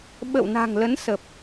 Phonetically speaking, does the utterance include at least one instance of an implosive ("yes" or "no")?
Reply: yes